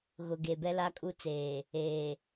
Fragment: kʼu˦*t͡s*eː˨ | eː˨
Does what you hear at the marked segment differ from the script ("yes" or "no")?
no